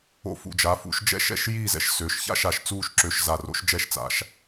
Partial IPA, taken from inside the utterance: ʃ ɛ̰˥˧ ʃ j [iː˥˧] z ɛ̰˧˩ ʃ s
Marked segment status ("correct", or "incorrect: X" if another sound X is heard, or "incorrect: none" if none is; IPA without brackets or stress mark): correct